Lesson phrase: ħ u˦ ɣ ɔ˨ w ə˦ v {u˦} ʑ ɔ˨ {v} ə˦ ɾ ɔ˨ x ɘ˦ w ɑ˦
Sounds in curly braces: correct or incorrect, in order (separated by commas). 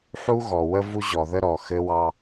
correct, incorrect